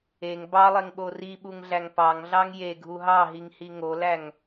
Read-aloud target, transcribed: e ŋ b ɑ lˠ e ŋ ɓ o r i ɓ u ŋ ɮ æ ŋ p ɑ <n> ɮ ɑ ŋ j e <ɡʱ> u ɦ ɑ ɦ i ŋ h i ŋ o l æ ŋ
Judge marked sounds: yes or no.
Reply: no, yes

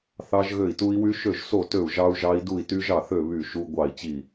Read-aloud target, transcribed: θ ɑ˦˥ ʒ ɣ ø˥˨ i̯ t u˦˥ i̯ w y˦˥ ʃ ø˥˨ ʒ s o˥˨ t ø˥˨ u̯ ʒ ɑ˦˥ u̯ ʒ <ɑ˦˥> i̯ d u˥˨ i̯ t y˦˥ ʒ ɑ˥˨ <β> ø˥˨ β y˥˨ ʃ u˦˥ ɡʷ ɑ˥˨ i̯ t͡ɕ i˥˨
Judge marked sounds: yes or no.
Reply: yes, no

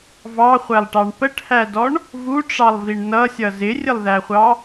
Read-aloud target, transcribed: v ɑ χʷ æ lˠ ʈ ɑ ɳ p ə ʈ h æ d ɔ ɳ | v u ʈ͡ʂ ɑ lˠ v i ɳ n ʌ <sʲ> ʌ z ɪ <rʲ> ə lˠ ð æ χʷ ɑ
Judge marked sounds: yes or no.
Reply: yes, yes

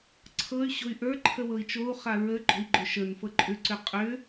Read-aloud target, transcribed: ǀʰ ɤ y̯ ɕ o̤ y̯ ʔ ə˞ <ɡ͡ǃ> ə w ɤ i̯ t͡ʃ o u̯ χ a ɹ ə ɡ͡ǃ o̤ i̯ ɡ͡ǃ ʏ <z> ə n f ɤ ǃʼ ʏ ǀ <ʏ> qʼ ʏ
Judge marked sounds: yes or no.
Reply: no, no, yes

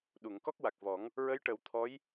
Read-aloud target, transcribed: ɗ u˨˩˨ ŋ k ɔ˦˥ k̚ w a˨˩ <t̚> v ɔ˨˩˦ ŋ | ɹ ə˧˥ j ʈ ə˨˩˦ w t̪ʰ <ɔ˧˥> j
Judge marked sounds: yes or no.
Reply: no, yes

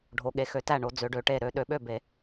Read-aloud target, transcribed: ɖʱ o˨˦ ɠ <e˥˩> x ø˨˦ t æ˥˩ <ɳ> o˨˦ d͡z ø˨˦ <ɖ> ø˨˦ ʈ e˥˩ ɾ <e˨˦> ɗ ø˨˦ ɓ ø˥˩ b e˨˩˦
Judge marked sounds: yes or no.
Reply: no, yes, yes, no

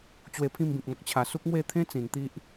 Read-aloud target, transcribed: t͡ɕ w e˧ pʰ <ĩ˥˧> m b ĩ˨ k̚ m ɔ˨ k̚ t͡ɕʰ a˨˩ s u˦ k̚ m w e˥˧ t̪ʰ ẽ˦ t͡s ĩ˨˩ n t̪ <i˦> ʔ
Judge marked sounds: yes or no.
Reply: yes, yes

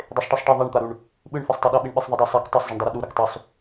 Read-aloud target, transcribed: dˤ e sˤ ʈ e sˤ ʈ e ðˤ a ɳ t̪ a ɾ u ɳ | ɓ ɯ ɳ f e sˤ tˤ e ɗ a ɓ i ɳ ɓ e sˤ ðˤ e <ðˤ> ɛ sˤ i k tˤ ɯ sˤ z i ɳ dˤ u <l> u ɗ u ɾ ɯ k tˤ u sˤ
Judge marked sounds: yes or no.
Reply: no, no

